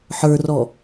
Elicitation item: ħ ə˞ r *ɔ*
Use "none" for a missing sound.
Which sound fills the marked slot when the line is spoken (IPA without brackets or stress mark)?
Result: ɔ